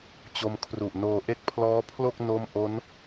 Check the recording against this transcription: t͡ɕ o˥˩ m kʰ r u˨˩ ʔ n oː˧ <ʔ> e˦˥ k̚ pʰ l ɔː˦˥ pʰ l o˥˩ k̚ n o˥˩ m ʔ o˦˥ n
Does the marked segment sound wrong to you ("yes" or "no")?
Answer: no